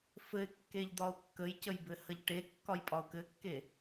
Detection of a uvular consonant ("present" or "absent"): absent